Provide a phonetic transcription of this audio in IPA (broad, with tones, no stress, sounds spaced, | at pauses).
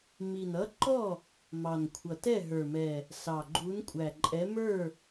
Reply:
m i˨˩ n ʌ˨˥ ǃ ɔ˥˩ | m ɑ˨˩ n kʷʰ ʌ˨˩ t ɛ˥˩ ɦ ə˞˨˩ m ɛ˨˩ | s ɑ˨˩ ɡ͡ǃ u˨˥ n kʷʼ æ˨˩ ǃʼ ɛ˨˥ m ə˞˥˩